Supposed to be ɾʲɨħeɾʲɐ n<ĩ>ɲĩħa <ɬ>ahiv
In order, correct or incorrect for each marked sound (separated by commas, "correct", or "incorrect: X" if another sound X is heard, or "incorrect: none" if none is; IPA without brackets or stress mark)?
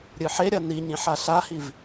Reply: incorrect: i, correct